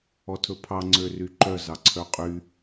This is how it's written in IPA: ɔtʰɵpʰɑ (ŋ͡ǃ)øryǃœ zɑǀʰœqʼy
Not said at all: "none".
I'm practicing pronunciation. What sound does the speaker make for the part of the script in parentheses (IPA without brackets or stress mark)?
ŋ͡ǀ